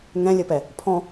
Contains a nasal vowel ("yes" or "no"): yes